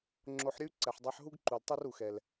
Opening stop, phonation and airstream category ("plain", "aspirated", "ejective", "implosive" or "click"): click